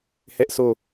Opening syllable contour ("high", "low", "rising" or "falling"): high